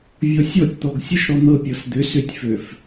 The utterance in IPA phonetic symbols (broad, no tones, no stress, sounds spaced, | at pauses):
vʲ ɔ sʲ ɔ tʲ t̪ ɔ ɡ sʲ ə ʃ ɾ ɔ n̪ ɤ pʲ ɤ s d̪ ʏ s ʏ tʲ f ø f